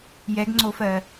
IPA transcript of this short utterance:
jɛɡŋ͡ǀofɜ

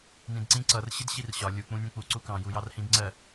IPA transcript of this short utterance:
nĩdǀĩ ǀʌr ɕɪdɕirɕɒ lʲu k͡pũnʲũk͡pu ǀukɑ̃ jujɑrhĩdŋ͡ǀɜ

